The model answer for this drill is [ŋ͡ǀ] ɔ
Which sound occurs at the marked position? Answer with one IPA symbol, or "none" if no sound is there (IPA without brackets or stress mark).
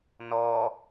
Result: n